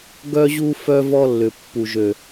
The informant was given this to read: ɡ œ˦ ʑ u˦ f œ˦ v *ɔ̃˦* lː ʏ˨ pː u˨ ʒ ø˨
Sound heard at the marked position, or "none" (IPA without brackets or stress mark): ɔ˦